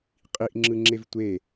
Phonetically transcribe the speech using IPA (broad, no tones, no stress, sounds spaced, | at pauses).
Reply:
qʼ i ʔ ŋ͡ǁ ɯ ŋ͡ǁ e v tʷ e